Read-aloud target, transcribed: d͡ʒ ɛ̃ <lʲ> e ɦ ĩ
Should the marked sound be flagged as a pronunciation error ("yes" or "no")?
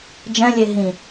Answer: no